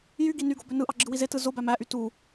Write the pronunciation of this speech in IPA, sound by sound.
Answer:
j y ɡ i n y ɡ o b ø n ɯ ʔ ɑ ɡ͡ǁ ɯ w i z e t ɯ z o b æ m æ ʔ y t u

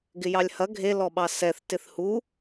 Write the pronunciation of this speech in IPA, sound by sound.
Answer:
ɡ ɪ j ɑ lʲ h ɐ ɡʱ e l ɔ ɓ ɑ s ɛ θ t ɪ θ h u

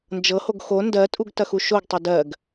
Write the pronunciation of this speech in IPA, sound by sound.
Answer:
n d͡ʒ ɤ h o ɡ x o n d ɜ tʼ u ɡ t ɐ x u ʃ o ɡ tˤ ɤ d ɜ ɡ

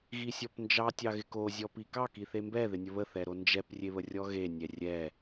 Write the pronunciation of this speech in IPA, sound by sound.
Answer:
ɣ i sʲ ɔ p n d͡ʒ ɑ tʲ ɑ ɣ ɪ k o zʲ ɔ p i k ɑ k i θ e m b ɛ ð ɪ nʲ ə β ə θ ɛ ɾ o n d͡ʒ ɛ p rʲ e β ə rʲ ɔ ɣ e nʲ ɛ rʲ ɛ

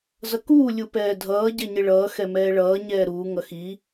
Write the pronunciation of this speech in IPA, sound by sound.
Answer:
z ʌ k uː lʲ u p ɛː dʱ ʌː ɟ ɛ ɲ ɪ ɭ ʌː x ɛ m ɛː ɭ ʌː ɲ ɛː ɾ uː ŋ ʌ x i

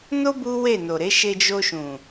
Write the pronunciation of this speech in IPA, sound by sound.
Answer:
n o˦ b u˦ w e˦˨ n o˨ ɾ e˨˦ ʃ e˧ d͡ʒ o˧ ʃ ũ˨

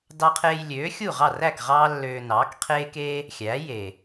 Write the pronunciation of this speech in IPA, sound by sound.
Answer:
d ɑ˧ qʰ eː˧ j lʲ øː˩˥ xʲ u˥˩ ʁ ɑ˥˩ r æ˥˩ k ʁ ɑː˥ lː øː˧ n ɑː˩˥ k qʰ eː˥ k eː˥ | xʲ æː˩˥ j eː˩

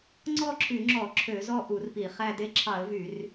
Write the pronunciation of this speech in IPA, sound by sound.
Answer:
ŋ͡ǀ ɔ˥˧ ǁʰ y˧˩˧ ŋ͡ǁ ɔ˧˩˧ ǁʰ ø˧˩˧ z ɔ˥˧ ʔ u˧˩˧ r p i˧˩˧ χ æ˥˧ d e˥˧ ǁʰ ɑ˧˩˧ ə̯ v y˧˩˧ r

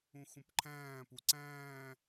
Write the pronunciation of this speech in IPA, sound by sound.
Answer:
ũ x ũ p ǃʰ æ̃ː p u ǀ æ̃ː

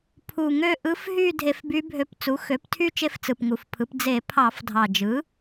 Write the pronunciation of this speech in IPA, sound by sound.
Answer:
pʰ u˨˩ ŋ ø˥˧ ʔ ɯ˧˥ f ɦ y˥˧ dʱ e˧ f b y˧˥ bʱ ø˧ p t͡s u˩˥ x ø˩˥ p tʰ y˥˧ t͡ʃ e˥˧ f t͡s ɯ˨˩ p ŋ u˨˩ f pʰ ɯ˩˥ p d͡z e˧˩˧ pʰ ɑ˧˩˧ f dʱ ɑ˨˩ d͡ʒ ɯ˩˥

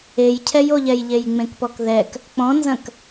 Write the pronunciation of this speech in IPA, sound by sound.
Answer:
e j cʰ ɛ j o ʎ ɛ j ʎ e j ŋ͡m ẽ k p ɔ k ð ɛ k | k͡p ɔ̃ n z ɐ̃ k

